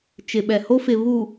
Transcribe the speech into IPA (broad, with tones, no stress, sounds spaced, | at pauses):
t͡ʃ ɪ˨ ɓ ɛ˨ h o˦ f ɪ˨ β uː˨